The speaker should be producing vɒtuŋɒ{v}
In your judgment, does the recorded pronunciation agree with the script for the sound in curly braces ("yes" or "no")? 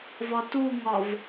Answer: yes